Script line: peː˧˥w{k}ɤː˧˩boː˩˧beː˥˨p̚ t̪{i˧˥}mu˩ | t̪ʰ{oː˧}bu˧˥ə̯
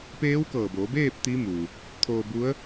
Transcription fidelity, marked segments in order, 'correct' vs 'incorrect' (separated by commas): correct, correct, correct